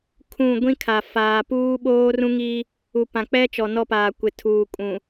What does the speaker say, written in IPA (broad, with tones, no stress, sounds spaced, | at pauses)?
kʰ ũ˦˨ ɡʷ ĩ˦ kʰ a˨ f aː˨ p uː˦ ɓ oː˦ r ũ˦ ŋ i˦ | u˨ p ã˨ k͡p ɛ˦ t͡ʃ ɔ˨ n ɔ˦˨ p aː˨ kʷ ɪ˨ tʰ uː˨ kʼ ũ˨